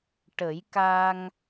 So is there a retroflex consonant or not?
yes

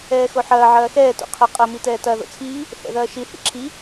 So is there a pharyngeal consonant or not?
yes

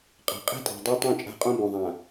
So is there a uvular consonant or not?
yes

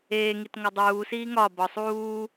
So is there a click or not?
no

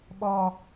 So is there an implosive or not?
yes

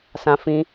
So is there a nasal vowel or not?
yes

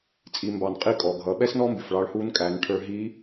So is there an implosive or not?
yes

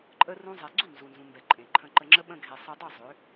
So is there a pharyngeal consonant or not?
no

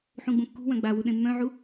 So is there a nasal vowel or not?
yes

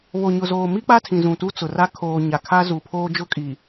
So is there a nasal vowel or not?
yes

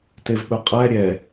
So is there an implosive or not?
yes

